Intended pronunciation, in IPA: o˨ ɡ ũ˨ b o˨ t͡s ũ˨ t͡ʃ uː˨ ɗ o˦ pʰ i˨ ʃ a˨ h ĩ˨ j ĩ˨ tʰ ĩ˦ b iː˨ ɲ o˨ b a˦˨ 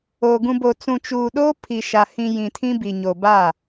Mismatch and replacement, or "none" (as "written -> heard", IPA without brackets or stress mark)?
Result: iː˨ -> i˨